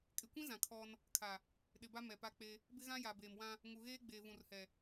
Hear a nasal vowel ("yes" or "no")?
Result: yes